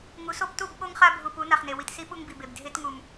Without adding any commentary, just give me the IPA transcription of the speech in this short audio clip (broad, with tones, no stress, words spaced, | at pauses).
ŋu˨˦so˦p tu˦˨bɓo˦ŋχa˦ bʱu˨pu˨˦na˨χne˨ wi˨tsi˦ ɓu˦ŋbi˨be˨b dʱe˦tŋu˨m